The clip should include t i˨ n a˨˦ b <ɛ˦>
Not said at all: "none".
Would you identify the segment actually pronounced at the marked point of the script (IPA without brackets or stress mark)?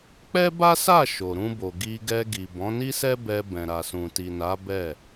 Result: ɛ˦˨